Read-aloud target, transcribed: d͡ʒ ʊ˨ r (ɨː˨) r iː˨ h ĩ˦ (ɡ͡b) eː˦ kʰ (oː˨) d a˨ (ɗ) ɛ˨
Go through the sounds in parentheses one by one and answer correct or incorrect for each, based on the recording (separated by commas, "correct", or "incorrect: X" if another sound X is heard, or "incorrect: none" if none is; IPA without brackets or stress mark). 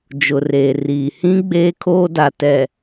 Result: incorrect: eː˨, correct, incorrect: oː˦, incorrect: t